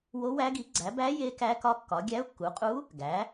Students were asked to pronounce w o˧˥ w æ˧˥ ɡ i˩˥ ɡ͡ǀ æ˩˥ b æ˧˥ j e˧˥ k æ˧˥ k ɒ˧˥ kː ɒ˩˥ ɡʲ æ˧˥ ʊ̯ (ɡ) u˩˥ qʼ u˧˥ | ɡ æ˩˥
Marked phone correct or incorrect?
incorrect